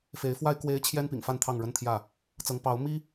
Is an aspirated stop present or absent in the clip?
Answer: present